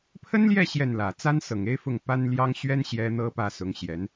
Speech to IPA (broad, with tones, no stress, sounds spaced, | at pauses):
pʰ ə˥ n l j ɛ˥˧ ɕ j ɛ˥˩ n l ä˨˩ t͡s a˥ n s ɤ˨˩ ŋ e˥ ɪ̯ f ʊ˥˩ ŋ p a˥ n l j ɑ˥ ŋ ɕ ɥ ɛ˥ n ɕ j ɛ˥ n̪ ɤ˥ p ä˥˩ s ʊ˧˥ ŋ ɕ j ɛ˧˥ n